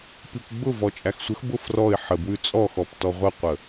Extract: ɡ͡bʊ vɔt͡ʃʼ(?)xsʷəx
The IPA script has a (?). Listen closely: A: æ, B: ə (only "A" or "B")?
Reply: A